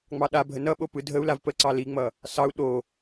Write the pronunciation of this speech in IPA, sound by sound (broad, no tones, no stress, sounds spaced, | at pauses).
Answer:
ŋ͡m ɑ ɗ a bʱ ə n ʌ ɓ o p ɯ dʱ ə u̯ l a v p ə ǀ ɑ l i ŋ͡m ʌ | s ɑ u̯ ɗ o